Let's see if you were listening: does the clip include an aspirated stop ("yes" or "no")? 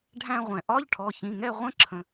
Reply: yes